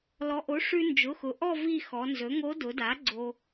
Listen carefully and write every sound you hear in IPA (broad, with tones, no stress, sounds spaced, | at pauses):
l ɔ˩˧ ʔ o˩˥ ʂ ʉ˧ n d͡ʒ ʊ˩˧˩ x ʊ˩˧ ʔ ɔ˥˧ v i˥˧ x ɔ˩˧ n z ɵ˩˥ ŋ o˧˥ d ʊ˩˧ d a˩˥ ɡ͡ǀ o˧